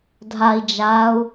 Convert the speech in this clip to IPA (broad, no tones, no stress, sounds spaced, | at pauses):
dʱ a i̯ d͡ʒ a u̯